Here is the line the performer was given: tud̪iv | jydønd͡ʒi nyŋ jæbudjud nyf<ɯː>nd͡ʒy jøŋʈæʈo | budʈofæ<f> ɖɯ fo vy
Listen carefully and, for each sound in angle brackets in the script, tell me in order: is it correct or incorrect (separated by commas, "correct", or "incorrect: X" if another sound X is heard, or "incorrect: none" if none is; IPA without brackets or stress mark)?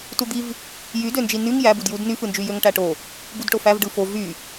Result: incorrect: ɯ, incorrect: v